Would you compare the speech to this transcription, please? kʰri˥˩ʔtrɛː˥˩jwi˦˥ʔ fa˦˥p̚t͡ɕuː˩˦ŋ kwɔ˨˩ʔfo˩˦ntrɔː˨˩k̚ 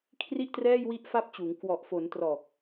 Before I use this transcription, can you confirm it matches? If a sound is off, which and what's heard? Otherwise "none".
none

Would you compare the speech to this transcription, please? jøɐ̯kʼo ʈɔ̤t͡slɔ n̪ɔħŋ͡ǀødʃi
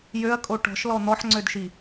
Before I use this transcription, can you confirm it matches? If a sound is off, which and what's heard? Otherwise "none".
t͡s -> ʃ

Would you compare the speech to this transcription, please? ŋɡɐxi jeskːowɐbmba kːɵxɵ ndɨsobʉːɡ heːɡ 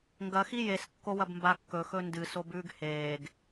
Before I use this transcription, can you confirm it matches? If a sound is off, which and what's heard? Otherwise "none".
none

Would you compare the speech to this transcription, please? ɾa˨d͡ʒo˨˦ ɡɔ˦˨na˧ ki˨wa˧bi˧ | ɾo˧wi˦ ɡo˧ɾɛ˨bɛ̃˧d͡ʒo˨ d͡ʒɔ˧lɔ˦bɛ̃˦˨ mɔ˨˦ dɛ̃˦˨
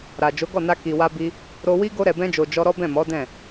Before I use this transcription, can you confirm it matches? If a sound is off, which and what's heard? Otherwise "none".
l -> ɾ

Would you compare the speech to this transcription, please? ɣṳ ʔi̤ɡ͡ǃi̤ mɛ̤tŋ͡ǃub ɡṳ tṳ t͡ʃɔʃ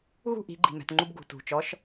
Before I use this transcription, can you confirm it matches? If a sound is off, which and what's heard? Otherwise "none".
none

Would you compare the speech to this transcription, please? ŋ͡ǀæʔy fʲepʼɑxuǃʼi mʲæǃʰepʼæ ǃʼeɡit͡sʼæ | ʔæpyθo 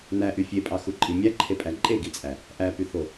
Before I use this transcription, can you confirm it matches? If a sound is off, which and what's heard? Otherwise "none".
ŋ͡ǀ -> n̪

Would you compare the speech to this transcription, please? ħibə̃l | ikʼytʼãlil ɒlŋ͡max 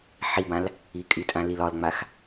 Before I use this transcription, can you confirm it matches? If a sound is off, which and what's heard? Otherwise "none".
ə̃ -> ã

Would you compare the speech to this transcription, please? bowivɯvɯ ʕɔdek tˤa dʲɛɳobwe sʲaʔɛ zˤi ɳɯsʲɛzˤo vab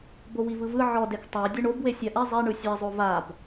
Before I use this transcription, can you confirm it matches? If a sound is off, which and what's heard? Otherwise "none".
none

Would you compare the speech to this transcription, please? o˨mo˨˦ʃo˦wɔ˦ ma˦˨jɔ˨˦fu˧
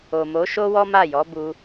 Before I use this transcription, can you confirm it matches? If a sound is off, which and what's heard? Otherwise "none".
f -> b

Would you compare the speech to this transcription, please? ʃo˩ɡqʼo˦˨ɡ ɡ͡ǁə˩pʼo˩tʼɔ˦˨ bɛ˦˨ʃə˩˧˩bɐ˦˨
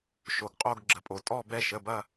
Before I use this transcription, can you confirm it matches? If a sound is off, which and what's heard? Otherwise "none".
none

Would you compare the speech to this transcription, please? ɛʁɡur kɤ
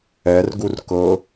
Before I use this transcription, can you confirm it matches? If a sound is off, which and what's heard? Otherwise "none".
ʁ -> r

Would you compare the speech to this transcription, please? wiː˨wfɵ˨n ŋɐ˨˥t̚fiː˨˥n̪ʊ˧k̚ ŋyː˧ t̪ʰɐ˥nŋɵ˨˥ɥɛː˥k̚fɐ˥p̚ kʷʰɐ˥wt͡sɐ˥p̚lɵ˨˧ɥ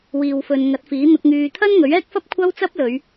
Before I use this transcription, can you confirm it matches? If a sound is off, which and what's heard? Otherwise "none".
none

